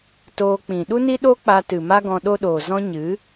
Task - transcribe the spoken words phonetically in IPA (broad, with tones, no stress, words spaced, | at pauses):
toː˧k͡pĩ˨ ɗu˦ni˦ ɗo˦k͡pa˧tɨ˨ ma˦ɡɔ̃˧ ɗo˦ɗoː˨ zɔ̃˦ɲɨ˨˦